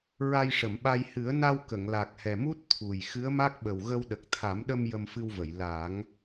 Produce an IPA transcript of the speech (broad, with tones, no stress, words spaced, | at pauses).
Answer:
ɹa˧jʂə˨˩˨mɓa˧j hɨ˨˩˦ə̯na˧w kə˨˩˨ŋla˨˩k̚hɛ˨˩mu˦˥t̚ t̪ʰu˨˩j xɨ˧˥ə̯ma˦˥k̚ɓə˨˩wɣə˧w ɗə˨˩k̚t̪ʰa˨˩˦mɗə˧m jə˧mfɨ˧wvə˨˩˨j la˨˩˦ŋ